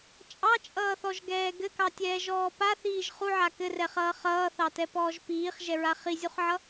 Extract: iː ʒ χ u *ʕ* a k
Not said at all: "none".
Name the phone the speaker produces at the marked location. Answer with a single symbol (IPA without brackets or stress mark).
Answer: ʕ